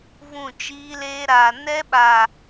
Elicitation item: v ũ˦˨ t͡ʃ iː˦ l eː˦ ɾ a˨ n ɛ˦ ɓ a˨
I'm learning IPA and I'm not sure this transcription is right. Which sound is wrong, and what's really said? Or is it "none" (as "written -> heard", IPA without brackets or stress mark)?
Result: none